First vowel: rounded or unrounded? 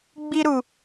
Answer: unrounded